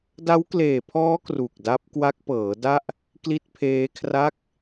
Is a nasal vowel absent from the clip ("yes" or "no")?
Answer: yes